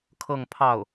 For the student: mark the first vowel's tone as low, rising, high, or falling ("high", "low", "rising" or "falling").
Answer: falling